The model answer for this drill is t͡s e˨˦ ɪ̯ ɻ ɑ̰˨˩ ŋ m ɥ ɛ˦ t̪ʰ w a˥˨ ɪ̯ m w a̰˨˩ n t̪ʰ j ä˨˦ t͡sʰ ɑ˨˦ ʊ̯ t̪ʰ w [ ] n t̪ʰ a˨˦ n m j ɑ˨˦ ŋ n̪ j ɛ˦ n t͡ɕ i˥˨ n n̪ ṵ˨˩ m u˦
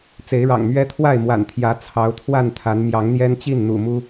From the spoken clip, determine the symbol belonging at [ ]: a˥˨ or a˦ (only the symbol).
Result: a˥˨